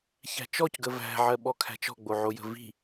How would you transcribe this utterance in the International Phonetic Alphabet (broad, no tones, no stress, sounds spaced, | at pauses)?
ç æ̤ t͡ʃ ɔ c ɡ ə v æ̤ ʕ ɜ ɓ ɔ kʰ æ̤ t͡ʃ ɔ̤ ɡ͡b o ʕ o j ə̤ v i̤